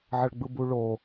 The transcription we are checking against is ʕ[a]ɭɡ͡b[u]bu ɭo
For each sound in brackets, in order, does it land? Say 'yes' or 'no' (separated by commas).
no, no